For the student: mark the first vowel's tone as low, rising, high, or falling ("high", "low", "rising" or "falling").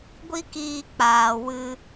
high